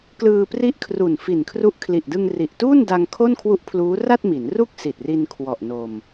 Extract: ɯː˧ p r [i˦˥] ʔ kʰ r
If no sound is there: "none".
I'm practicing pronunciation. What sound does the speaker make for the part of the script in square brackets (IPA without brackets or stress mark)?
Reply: i˦˥